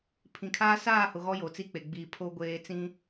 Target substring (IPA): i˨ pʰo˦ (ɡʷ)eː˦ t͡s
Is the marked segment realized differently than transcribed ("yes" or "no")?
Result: no